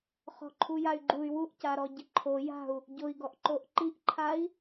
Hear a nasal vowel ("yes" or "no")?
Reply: no